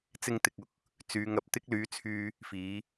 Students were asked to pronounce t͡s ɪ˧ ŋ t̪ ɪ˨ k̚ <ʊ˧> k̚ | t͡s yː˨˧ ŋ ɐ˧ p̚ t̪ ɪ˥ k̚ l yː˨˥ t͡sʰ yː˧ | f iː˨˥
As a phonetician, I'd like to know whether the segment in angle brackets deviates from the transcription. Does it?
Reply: no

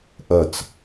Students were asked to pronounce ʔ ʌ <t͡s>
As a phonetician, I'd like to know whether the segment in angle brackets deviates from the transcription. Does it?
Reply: no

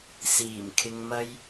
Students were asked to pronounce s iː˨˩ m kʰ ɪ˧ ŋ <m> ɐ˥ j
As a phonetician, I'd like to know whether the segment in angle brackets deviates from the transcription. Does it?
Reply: no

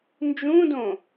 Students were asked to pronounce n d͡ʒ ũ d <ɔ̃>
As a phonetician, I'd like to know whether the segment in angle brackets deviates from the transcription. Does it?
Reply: yes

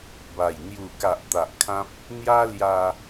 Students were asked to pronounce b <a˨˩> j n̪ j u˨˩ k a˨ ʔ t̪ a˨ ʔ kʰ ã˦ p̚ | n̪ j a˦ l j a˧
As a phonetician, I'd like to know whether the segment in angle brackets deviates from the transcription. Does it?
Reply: no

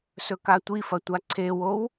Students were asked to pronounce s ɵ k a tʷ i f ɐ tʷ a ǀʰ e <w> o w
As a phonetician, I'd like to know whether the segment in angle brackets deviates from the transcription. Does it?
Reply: no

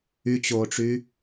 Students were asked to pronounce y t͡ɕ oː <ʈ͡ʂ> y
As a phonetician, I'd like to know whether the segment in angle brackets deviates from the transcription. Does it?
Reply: no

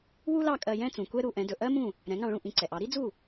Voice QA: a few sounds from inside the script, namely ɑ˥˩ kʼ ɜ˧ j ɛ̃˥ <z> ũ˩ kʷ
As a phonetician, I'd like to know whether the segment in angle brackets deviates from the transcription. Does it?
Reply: yes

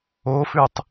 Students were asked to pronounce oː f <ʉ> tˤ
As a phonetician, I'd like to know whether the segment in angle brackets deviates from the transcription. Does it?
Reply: no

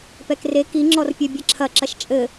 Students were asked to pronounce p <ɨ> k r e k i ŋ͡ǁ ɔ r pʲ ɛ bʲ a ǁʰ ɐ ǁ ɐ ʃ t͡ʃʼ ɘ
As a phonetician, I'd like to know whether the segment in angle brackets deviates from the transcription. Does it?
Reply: yes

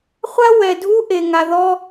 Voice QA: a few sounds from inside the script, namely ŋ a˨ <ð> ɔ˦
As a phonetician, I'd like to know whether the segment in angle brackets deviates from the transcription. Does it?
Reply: no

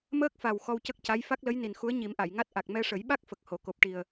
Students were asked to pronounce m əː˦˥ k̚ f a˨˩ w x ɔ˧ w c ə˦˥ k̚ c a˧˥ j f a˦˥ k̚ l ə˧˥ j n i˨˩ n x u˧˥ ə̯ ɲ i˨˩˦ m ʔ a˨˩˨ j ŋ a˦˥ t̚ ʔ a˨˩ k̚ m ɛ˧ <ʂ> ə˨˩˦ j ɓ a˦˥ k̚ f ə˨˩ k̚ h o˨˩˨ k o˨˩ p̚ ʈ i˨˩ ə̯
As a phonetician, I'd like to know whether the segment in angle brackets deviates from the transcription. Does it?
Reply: no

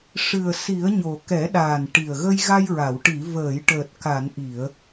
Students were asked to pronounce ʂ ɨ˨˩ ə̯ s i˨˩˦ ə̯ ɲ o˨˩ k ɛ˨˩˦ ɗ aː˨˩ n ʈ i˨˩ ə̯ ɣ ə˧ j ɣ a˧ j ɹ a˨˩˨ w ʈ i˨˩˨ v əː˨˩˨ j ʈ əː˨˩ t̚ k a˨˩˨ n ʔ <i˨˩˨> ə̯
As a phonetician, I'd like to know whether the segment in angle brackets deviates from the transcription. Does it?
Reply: no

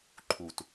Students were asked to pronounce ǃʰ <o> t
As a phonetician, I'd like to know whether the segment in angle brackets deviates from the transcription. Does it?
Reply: yes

